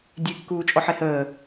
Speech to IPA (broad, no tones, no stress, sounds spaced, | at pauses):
dʲ e kː uː t͡ʃʼ ɔ ħ e h əː